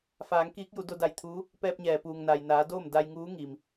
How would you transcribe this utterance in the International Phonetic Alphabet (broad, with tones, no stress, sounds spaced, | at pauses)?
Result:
f aː˩˧ ŋ k iː˧˥ k̚ j u˩˧ d o˧ d a˧˩ j t̪ʰ uː˧˥ | p ɛː˧ p̚ ɲ ɛː˩ p uː˩ ŋ n a˩ j n aː˩˧ d oː˥˨ m d a˧ j ŋ uː˧˥ ŋ iː˩ m